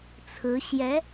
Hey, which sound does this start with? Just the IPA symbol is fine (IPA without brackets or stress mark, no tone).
t͡sʰ